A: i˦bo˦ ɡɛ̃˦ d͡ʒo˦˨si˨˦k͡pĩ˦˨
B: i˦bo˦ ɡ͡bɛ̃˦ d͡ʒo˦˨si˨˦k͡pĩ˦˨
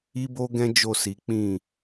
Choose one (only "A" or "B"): A